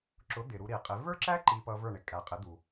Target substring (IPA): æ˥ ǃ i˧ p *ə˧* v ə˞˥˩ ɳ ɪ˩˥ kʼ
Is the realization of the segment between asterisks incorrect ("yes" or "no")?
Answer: yes